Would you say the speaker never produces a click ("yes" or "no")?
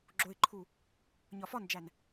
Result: no